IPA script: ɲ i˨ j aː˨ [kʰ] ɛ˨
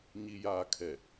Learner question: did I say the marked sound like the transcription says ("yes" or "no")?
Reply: yes